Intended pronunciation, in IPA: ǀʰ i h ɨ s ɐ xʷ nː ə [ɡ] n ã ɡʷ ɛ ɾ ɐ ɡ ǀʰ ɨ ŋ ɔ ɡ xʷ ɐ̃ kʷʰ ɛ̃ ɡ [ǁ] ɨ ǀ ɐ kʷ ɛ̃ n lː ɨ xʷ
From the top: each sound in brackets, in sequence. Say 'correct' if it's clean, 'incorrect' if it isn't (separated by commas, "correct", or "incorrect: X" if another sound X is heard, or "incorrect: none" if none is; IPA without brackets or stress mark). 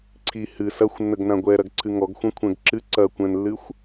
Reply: correct, correct